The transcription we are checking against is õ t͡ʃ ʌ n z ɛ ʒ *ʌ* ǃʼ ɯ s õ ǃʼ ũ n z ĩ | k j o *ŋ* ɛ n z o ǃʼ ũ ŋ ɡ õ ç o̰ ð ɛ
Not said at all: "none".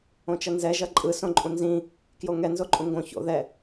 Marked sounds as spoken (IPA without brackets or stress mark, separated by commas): ʌ, ŋ